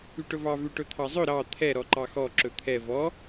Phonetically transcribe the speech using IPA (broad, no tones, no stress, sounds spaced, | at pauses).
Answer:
y ʈ ɵ v ɑ v ʉ ʈ ɵ t̪ʰ ɑ zˤ ɵ ɾ ɑ t̪ʰ ɛ ɾ ɔ ǃ ɑ x ɔ ǁ ɵ t̪ʰ ɛ v ɔ